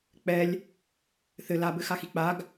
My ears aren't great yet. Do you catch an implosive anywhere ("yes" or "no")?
no